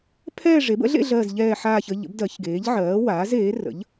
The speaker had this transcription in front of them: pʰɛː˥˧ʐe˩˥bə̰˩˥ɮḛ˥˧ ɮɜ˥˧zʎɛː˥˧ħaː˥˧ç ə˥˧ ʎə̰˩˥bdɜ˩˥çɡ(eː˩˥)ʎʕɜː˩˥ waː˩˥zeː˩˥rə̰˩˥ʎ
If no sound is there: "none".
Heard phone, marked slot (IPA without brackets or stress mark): eː˩˥